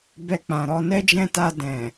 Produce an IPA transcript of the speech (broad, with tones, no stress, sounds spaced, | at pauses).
b ɛ˧ k͡p ã˨ ɾ ɔ˧ n ɛ˦ d͡ʒ ɛ̃˦˨ t a˧ d ɛ̃˨